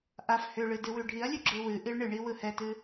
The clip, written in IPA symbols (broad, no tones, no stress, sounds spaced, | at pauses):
ʔ a f h ʏ ɭ ɨ d ɨ w ʉ ɖʱ i ɐ̯ lʲ ʉ ɡ͡ǁ ɯ w ɨ ʔ i ɭ ɳ ɨ ɳ i w ɯ h ɛ t ɨ